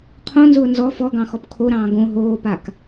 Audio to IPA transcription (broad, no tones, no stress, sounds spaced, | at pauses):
qʰ õ n z ʊː n z ɔ f ɔ ɡ ɑ̃ x ɔ p kʰ o ɾ ɑ̃ː ɡ õ ɦ oː p a k